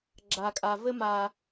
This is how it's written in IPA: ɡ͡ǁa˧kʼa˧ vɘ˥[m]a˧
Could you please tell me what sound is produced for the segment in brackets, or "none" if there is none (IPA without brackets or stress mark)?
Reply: m